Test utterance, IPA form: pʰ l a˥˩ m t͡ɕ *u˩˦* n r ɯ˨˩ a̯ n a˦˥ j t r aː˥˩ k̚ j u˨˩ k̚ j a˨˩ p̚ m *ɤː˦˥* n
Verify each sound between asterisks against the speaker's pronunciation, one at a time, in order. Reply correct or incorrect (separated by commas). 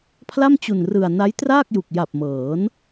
incorrect, incorrect